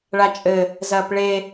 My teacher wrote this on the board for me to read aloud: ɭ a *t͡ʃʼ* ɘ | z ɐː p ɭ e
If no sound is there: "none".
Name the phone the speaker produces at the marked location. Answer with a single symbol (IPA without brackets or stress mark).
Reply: t͡ʃʼ